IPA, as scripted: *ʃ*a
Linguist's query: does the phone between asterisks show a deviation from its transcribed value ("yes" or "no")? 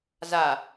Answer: yes